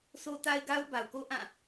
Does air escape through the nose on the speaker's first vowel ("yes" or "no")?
no